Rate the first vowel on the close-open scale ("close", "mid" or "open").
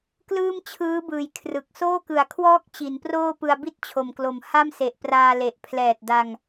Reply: close